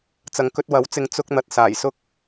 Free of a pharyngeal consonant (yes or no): yes